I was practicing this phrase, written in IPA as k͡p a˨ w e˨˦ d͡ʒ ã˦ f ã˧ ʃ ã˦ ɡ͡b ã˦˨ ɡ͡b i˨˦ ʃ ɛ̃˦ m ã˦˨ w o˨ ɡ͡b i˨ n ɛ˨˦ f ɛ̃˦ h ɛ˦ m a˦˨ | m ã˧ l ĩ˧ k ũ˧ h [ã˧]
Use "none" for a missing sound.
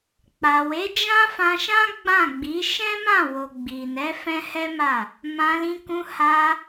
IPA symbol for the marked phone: a˧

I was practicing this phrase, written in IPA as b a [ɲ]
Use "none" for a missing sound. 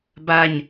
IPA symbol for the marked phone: ɲ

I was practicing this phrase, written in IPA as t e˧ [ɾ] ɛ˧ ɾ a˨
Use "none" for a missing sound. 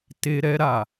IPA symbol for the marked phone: ɾ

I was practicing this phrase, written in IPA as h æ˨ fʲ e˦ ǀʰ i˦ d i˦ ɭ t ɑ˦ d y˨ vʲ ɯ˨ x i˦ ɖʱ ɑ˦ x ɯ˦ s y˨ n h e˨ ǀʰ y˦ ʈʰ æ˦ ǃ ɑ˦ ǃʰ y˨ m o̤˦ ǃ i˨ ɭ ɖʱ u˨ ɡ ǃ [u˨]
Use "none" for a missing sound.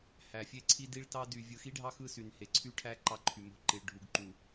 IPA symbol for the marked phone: u˨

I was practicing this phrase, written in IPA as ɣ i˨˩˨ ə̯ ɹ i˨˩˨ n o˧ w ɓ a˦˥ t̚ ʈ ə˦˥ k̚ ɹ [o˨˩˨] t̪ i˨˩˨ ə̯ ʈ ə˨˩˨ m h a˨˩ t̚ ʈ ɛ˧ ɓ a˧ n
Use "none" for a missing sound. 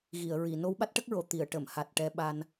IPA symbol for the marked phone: o˨˩˨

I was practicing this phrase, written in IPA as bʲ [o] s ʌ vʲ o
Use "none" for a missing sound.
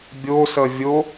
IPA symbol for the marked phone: o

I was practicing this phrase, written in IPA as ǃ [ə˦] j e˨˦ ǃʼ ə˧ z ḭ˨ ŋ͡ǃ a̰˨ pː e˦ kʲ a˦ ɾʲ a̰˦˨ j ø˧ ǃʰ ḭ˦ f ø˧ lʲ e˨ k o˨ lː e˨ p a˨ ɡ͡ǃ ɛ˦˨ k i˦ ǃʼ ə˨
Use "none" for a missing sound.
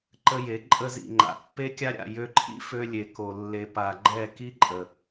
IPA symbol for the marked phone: ə˧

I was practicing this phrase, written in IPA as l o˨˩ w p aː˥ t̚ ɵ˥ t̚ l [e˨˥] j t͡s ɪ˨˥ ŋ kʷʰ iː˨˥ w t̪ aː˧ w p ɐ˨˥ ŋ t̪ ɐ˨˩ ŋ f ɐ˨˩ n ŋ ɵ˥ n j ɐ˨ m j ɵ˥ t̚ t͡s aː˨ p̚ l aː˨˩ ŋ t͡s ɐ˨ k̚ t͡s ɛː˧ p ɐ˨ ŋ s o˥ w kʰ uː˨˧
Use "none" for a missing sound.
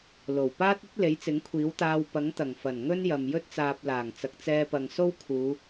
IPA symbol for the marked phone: e˨˥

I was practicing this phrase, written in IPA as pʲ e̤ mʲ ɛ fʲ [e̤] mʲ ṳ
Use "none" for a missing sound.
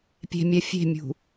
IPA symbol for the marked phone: e̤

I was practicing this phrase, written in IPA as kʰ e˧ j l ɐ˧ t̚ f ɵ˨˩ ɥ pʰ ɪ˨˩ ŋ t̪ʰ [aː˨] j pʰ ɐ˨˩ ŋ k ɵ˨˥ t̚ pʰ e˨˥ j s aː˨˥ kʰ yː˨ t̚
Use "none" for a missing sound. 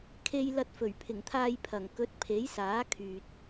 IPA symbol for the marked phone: aː˧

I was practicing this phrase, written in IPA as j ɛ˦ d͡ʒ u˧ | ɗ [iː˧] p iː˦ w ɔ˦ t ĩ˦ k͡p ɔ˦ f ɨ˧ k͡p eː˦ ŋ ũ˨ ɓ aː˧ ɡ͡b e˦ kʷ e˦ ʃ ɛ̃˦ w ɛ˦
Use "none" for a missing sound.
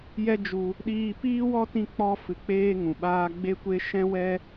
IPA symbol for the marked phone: iː˧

